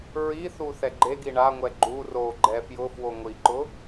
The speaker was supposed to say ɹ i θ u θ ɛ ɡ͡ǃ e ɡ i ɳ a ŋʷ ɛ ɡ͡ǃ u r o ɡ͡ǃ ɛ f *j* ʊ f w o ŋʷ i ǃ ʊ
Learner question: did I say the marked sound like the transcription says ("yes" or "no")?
yes